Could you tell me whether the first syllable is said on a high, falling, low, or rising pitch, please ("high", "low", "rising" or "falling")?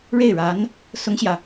falling